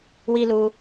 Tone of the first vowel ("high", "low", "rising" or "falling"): high